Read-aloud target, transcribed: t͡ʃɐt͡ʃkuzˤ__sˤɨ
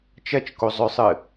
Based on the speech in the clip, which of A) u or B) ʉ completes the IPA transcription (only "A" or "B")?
B